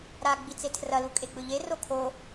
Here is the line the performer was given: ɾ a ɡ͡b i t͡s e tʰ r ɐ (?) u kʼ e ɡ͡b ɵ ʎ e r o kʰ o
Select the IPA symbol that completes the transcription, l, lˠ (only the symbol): l